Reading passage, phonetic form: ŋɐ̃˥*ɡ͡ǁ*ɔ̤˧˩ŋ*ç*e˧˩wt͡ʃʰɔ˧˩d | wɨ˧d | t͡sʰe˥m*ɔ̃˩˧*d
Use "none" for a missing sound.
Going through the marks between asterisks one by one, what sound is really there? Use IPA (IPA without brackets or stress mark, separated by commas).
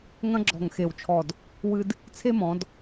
ɡ͡ǁ, x, ɔ̃˩˧